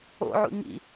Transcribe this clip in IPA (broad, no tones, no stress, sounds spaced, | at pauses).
o̰ ʕ ṵ ɲ ḭ